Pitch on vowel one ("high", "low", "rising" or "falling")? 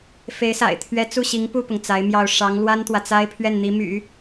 rising